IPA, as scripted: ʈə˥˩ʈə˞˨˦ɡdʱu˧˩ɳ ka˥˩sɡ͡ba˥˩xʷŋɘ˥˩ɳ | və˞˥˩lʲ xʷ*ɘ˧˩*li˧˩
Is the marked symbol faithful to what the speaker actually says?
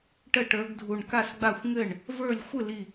no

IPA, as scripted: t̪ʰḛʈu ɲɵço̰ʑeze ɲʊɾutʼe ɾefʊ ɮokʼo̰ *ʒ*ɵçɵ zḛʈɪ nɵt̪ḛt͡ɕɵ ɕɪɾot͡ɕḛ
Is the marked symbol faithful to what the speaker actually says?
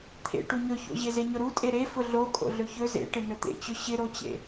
no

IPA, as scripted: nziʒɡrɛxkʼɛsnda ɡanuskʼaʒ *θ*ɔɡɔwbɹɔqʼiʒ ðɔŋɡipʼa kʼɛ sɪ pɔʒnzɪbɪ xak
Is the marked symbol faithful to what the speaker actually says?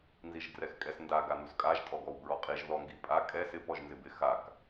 no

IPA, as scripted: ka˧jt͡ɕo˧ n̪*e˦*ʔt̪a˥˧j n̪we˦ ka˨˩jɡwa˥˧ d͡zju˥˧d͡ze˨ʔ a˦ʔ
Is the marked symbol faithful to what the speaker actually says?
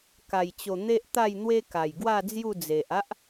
yes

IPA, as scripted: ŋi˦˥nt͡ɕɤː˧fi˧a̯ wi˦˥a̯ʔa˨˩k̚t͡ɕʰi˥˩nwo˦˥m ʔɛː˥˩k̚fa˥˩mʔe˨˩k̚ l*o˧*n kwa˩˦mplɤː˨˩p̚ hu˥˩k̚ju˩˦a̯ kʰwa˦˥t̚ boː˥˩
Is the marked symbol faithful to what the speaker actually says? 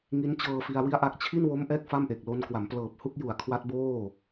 yes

